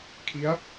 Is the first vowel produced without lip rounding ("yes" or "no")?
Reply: yes